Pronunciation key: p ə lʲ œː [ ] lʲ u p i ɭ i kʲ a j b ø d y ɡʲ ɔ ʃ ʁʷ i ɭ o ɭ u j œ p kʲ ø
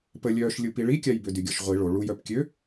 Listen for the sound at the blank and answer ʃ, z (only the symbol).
ʃ